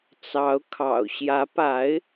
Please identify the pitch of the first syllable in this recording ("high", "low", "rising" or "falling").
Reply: rising